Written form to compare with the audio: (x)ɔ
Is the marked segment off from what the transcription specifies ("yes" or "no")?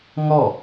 yes